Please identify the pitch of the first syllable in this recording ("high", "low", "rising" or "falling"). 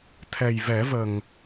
low